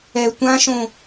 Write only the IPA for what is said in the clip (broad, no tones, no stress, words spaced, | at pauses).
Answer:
ɛ tʷãʃõ